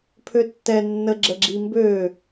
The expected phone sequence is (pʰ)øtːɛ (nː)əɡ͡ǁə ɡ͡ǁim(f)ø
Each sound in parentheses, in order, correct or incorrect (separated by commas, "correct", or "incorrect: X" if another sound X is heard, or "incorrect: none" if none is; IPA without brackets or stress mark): correct, correct, incorrect: b